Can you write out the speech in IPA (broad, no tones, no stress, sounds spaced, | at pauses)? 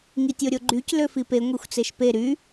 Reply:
ŋ i tʲ o ɾʲ o ɡ͡ǃ y c l ø f i p e ŋʷ e xʷ t͡s e ʃ p e ɾ y